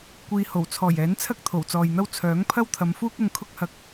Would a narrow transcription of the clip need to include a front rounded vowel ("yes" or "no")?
yes